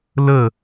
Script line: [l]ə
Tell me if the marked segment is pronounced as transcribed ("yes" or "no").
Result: yes